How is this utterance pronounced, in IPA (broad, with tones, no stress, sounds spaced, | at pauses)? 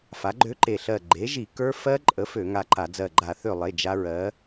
f a˩˥ ɡ͡ǃ ø˦˥ ǃ e˧˩ ɬ ɜ˧˩ ɡ͡ǃ e˩˥ ʒ i˧˩˧ k ə˞˦˥ f ɜ˦˥ ǃʼ ə˩˥ f ø˧˩˧ ŋ a˧˩ ǃ a˧˩˧ d͡z ɜ˧˩ ɡ͡ǃ a˧˩˧ θ ø˧˩ lˠ e˩˧˩ d͡ʒ a˦˥ ɹ ɜ˩˥